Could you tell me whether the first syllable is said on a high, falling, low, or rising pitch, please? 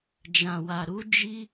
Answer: low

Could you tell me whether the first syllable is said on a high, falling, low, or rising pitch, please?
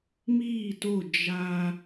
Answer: falling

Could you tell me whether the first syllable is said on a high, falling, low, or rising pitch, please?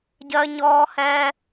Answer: high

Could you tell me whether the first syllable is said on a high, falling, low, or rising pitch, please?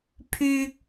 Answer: high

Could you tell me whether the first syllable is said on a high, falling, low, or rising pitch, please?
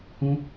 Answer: high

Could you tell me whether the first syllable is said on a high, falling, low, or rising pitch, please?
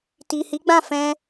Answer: low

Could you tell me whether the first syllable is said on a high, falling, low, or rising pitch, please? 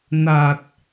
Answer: low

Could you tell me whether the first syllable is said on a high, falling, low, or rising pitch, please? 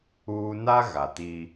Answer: high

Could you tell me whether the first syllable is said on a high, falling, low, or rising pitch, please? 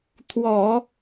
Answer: low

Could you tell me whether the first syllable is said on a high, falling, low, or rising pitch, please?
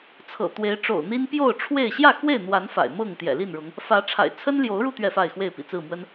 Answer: low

